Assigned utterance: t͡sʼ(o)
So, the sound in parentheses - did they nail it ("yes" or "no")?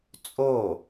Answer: yes